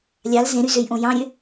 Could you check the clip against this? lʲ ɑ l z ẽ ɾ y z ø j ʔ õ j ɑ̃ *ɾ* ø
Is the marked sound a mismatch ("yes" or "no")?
yes